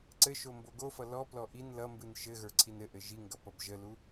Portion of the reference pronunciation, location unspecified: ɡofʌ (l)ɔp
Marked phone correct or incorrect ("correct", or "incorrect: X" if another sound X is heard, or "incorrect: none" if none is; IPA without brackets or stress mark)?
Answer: correct